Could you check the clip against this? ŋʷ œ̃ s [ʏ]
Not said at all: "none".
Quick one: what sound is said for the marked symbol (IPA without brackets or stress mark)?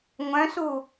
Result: u